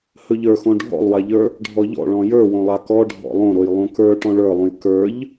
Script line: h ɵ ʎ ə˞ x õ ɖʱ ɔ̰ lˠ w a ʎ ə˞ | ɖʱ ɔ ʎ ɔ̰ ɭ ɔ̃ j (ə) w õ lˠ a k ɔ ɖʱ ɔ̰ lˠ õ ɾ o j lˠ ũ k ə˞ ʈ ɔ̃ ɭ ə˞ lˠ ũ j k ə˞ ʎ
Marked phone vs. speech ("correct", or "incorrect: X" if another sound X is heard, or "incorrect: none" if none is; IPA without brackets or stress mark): incorrect: ə˞